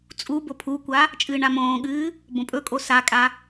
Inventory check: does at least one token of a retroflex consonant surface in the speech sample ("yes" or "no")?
yes